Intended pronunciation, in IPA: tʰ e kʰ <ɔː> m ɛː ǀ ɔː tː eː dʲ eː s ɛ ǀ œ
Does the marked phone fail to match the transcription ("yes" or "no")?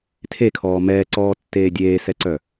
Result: no